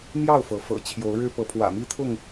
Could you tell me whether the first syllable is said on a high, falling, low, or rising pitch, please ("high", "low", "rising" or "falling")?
falling